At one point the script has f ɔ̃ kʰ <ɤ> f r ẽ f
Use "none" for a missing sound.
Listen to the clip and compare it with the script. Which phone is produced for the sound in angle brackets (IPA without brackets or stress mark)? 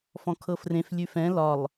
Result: ɤ